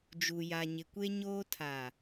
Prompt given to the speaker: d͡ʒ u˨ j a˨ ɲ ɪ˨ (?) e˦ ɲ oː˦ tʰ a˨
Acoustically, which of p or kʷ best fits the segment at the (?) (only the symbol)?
kʷ